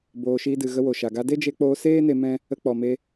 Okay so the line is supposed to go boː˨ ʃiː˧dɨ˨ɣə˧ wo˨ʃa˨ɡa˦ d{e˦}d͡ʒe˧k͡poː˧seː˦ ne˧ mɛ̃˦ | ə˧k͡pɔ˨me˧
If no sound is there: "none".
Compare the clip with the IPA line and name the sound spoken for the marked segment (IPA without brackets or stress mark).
e˦